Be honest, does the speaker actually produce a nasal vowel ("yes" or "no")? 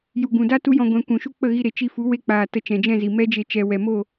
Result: yes